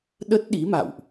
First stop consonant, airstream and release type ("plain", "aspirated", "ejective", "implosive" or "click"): implosive